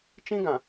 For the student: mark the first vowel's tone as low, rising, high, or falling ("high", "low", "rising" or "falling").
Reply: high